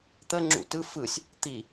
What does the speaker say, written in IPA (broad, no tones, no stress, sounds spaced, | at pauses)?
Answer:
t̪ ə ŋ͡ǁ ṵ t ɯ f ɯ sʲ | t̪ i